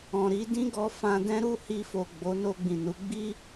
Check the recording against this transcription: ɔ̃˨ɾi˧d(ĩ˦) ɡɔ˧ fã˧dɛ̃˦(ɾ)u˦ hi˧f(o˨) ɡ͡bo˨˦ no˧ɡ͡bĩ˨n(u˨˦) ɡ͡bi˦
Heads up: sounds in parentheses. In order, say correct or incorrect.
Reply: correct, correct, correct, correct

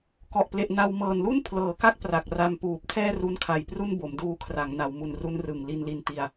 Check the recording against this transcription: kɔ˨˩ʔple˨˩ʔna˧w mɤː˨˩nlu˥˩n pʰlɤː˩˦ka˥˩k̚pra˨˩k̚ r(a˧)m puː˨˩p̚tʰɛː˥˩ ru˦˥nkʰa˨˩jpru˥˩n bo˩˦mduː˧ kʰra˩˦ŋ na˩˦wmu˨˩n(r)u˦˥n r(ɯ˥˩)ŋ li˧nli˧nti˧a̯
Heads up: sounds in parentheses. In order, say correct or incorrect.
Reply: correct, correct, incorrect: ɯ˨˩

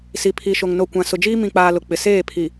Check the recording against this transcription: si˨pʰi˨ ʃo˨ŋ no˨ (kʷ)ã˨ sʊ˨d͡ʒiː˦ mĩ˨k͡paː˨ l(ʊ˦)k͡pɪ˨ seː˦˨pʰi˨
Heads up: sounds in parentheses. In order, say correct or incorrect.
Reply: correct, incorrect: ʊ˨

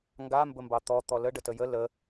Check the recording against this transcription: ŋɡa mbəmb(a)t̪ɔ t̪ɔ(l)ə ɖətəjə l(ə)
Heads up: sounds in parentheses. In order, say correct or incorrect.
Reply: incorrect: ɑ, correct, correct

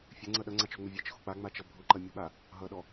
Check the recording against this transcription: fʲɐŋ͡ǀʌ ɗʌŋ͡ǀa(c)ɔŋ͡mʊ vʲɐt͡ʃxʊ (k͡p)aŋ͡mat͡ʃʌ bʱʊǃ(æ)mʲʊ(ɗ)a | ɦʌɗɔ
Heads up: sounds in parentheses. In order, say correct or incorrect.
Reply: incorrect: t͡ʃ, correct, incorrect: ɐ, incorrect: ɓ

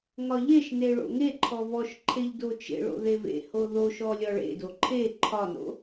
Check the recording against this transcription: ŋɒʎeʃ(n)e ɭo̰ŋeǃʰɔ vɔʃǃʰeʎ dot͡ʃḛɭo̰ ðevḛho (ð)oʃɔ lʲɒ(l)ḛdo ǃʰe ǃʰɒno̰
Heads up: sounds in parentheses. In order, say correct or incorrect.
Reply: correct, correct, incorrect: ɭ

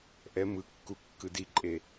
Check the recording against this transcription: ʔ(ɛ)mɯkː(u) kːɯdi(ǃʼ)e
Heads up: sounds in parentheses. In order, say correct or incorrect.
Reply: correct, correct, correct

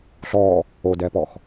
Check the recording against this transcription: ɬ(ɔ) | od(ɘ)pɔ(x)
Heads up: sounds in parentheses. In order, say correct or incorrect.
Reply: correct, incorrect: ɛ, correct

